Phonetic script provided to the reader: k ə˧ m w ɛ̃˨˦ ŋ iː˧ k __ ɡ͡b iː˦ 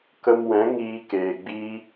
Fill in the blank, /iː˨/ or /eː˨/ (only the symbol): eː˨